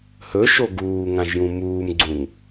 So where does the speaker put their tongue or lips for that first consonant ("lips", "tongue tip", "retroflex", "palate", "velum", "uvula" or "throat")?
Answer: throat